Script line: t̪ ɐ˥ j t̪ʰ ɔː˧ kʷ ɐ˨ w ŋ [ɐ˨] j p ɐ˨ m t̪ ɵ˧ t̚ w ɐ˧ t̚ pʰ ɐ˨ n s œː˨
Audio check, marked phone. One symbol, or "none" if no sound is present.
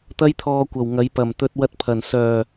ɐ˨˧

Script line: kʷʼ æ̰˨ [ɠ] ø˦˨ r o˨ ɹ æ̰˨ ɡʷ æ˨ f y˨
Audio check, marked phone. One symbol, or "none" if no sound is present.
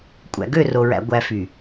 ɡ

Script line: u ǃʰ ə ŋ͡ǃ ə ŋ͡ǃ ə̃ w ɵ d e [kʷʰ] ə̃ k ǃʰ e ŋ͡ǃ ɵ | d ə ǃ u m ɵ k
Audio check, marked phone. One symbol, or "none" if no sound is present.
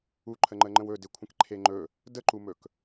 kʷʰ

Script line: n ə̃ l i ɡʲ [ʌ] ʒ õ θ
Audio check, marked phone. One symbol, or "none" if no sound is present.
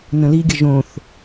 ə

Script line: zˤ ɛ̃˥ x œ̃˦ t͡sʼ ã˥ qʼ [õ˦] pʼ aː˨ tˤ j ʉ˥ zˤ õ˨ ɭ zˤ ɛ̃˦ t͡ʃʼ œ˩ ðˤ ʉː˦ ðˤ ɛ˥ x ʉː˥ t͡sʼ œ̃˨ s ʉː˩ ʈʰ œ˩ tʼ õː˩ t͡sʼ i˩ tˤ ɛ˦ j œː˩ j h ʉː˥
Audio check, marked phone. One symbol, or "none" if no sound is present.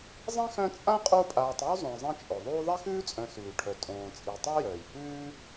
o˦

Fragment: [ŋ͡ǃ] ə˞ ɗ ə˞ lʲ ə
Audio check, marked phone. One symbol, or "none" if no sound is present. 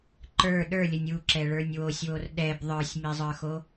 ǃ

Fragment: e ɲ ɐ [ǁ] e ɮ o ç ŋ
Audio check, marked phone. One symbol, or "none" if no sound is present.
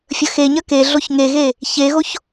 k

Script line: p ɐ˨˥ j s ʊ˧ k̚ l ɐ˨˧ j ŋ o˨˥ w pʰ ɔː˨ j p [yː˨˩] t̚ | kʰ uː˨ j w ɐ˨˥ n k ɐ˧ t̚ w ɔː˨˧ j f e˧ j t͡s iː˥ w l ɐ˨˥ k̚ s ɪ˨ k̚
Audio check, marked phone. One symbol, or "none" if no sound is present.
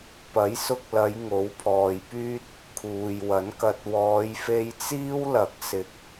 yː˥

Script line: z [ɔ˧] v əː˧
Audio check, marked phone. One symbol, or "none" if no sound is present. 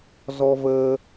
ɔ˧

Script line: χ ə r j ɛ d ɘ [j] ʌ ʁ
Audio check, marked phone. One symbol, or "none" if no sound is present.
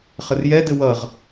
w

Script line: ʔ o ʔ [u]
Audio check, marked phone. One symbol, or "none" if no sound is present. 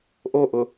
ʊ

